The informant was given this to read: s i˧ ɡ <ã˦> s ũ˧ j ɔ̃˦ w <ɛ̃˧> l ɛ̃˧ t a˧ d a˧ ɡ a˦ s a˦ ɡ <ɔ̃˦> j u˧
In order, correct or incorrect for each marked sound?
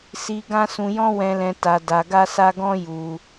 correct, correct, correct

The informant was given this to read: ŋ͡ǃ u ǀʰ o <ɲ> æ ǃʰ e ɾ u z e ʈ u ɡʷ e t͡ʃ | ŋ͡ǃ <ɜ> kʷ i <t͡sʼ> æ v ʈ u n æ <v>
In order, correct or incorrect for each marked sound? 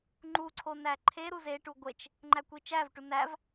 incorrect, incorrect, incorrect, correct

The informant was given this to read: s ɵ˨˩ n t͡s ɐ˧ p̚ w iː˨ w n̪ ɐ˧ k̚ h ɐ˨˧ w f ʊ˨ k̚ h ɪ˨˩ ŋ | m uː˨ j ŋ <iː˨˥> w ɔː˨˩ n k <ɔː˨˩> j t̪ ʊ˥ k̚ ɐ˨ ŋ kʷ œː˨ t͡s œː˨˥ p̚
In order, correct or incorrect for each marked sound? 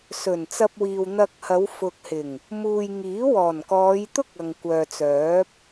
correct, incorrect

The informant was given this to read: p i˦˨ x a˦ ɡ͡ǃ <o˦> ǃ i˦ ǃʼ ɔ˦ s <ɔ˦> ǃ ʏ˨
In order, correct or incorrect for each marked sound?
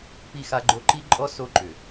correct, incorrect

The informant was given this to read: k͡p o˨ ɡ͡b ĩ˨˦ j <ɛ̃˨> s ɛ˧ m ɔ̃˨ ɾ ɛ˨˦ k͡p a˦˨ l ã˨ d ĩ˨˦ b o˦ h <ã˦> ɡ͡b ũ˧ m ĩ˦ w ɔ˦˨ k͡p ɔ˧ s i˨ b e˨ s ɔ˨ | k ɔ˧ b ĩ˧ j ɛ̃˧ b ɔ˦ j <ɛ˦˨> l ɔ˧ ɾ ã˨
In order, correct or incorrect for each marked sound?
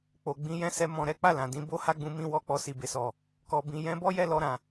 incorrect, incorrect, correct

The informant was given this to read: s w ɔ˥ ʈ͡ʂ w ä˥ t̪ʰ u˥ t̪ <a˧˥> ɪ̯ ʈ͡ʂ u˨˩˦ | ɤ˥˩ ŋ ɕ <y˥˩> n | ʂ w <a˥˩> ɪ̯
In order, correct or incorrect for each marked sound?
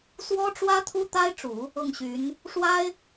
incorrect, incorrect, incorrect

